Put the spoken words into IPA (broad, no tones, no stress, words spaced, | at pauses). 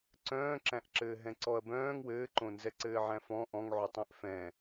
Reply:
ǀœ̃ːǁæ̃ʔǁɘː ɦɛ̃ǀɔɐ̯bœ̃ːŋ wɘːǃõ nzɛǀɘːʕæ̃fɔ̃ ʔɔ̃ŋʕotˤɛ̃ʔ fɛ̃